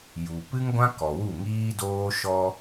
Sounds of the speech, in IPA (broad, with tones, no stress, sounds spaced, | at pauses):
j u˨ p ɨ˦ ŋ ɡʷ ã˦ k ɔ˨ w u˦˨ ŋ iː˦ d oː˦ ʃ ɔ˧